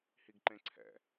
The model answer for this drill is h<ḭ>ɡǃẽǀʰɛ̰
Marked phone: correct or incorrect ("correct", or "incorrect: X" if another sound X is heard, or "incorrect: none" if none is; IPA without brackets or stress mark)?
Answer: incorrect: i